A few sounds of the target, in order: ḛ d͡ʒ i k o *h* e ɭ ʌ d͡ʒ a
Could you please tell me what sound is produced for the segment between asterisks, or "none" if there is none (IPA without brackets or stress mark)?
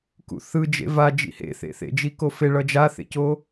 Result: f